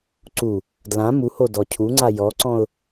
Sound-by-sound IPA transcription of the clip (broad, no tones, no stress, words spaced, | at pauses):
ǀu | dlã muho dɔcʰuŋ͡ǀa jɔǀɔ̃ʊ̯